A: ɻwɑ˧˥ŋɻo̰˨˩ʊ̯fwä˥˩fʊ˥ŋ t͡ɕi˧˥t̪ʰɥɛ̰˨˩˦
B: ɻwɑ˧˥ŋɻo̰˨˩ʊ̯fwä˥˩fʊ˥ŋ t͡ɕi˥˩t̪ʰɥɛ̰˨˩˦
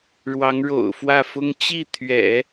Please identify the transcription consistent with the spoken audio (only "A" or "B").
B